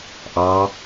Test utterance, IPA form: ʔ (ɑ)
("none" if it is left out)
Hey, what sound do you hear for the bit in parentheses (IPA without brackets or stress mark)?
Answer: ɑ